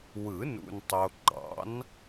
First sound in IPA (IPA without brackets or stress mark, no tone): w